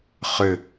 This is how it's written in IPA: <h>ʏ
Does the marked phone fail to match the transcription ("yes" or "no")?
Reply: yes